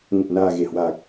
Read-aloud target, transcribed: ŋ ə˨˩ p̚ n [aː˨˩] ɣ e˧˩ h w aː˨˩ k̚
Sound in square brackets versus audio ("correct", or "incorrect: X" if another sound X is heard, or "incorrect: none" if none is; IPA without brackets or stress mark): correct